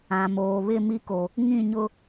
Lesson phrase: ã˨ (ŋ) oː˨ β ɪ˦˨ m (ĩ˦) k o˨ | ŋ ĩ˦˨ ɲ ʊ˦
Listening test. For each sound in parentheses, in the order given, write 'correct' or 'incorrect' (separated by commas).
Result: incorrect, incorrect